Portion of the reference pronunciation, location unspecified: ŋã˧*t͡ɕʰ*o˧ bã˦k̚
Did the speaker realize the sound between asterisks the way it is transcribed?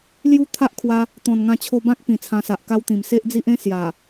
yes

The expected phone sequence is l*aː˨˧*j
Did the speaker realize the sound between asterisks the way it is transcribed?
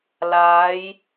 yes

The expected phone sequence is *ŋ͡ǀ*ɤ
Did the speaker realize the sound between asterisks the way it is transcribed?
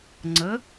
yes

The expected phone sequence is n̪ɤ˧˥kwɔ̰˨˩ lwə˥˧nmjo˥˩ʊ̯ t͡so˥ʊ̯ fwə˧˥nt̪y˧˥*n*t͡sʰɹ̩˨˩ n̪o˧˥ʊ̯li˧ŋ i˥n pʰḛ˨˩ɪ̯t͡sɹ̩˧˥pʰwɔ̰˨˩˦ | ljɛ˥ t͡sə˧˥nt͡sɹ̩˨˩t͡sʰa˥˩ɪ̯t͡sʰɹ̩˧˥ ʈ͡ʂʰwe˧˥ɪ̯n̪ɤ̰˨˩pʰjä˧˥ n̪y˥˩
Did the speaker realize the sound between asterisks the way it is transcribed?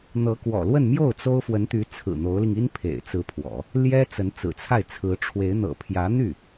no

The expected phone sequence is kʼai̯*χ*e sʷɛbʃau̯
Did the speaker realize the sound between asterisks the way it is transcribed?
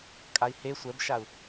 no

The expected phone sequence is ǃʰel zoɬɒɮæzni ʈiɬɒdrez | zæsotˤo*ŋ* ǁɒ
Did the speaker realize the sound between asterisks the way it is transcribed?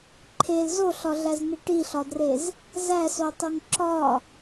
yes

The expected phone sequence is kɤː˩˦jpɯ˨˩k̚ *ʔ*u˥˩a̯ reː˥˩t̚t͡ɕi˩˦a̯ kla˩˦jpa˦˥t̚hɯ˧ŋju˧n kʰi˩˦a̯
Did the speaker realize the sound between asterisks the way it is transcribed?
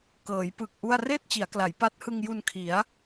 yes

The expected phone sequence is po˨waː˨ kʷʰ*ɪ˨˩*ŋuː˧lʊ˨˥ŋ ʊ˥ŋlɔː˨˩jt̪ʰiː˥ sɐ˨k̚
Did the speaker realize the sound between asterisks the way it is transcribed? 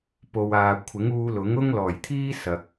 no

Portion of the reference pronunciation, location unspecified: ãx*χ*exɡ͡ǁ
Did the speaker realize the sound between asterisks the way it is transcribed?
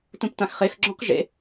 yes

